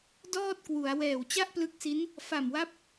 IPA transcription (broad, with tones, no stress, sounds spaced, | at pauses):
d ɔː˥˩ t̚ k w u˩˦ a̯ w ɛː˨˩ w t͡ɕ a˥˩ ʔ p l ɯ˦˥ k̚ s i˦˥ n | f a˨˩ m w a˦˥ p̚